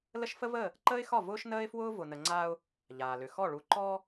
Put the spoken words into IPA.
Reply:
l ə˦ ʃ f ə˦ v əː˦˨ | ǃ əː˦ ɪ̯ x ɒ˦˨ v ʊː˦ ʃ n əː˦ ɪ̯ f w ʊː˦ v ʊ˨ n ə˨ ŋ͡ǀ aː˦ ʊ̯ | ʎ aː˨ l ʏ˨ x ɔ˦˨ ɭ u˨ ǃ ɔː˦

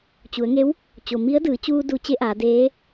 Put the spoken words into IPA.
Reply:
t͡ɕ u˩˧ ə̯ ŋ e˧˥ w | t͡ɕ o˩ m i˧˥ ə̯ d ɯː˩˧ t͡ɕ uː˧ d u˩˧ t͡ɕ e˧˥ ʔ aː˩˧ d eː˧˥

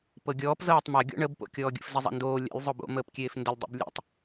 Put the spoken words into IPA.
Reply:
p ɤ ɡʲ ɔː p z ɤː tˤ m a ɡʲ ɔ̰ ɳ ə b p o̰ kʲ ɔː ɡʲ ə̰ f z e zˤ a̰ n d oː lʲ a̰ lʲ zˤ o b o̰ m əː p kʲ eː f n d ə lʲ dˤ ḛ b lʲ ḛ tˤ

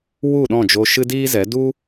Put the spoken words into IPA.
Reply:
w u˦˨ ɗ ɔ̃˦˨ d͡ʒ o˧ ʃ ɨ˦ d iː˦ z ɛ˨˦ d u˦

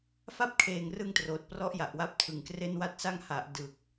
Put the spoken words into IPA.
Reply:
f a˥˩ p̚ kʰ eː˨˩ ŋ r ɯ˧ ŋ t r oː˨˩ t̚ p r ɔ˦˥ ʔ j a˨˩ ʔ w a˦˥ p̚ tʰ ɯ˨˩ ŋ k r e˥˩ n w a˥˩ t̚ s a˦˥ ŋ h a˨˩ ʔ d ɯ˨˩ k̚

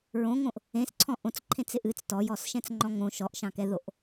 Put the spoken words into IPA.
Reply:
ɹ õ ŋ õ ʔ | ẽ s ǀʰ ɔ̃ ʔ õ t͡s ǃʰ ẽ t͡s ɪ ʔ ɨ t͡s t ɔ j ɔ s ʃ ɛ̃ t͡s ŋ͡ǃ ɔ̃ ŋ õ ʃ ɔ ʔ ʃ ɑ̃ k ɛ ð o ʔ

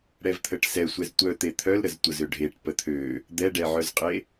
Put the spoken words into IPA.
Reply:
ɽ ɛ v t̪ʰ ə ʈ s ɛ sʷ ɛ z tʷ œ t̪ e t̪ʰ œ l ɾ ə z tʷ ə z ø ɖʱ e ʈ p ə t̪ʰ ø | d̪ ɛ ɖ ɛ ʕ œ z qʼ e

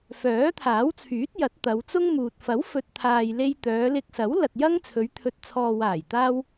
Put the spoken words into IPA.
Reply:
f œː˨˥ t̪ʰ aː˨˥ w t͡sʰ yː˨˥ t̚ j ɐ˨˥ t̚ t̪ ɐ˨˧ w t͡s ʊ˥ ŋ m uː˨ t̚ f ɐ˨˥ w f ɵ˨ t̚ t̪ʰ aː˨ j l e˧ j t̪ œː˨˧ l ɪ˧ k̚ s ɐ˨˥ w l ɐ˨ t̚ j ɐ˥ ŋ t͡sʰ ɵ˨˧ ɥ t̪ʰ ɵ˨ t̚ t͡sʰ ɔː˨ w aː˨˩ j t̪ aː˥ w

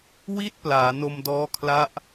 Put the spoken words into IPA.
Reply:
w i˥˩ t̚ p l aː˩˦ n o˧ m d ɔː˦˥ kʰ l a˦˥ ʔ

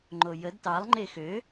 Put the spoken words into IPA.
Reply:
ŋ͡ǃ o j ə d t ɑ lˠ ŋ͡ǃ e x ø

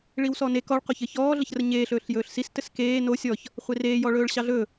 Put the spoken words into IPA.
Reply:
ɭ i w s ɔ n e k ɔ ɭ q o ç ɘ ç ɔː ɮ ə ç r ə ɲ eː ɬ ɵː ɬ j ɵː ɬ s i s t ɘ s k eː n o sʲ ɔ ç | χʷ e r eː j ɔ ɭ ɵː ɭ ɕ ɑ ɮ ɵ

